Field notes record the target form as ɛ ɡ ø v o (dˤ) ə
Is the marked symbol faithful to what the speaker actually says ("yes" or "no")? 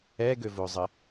no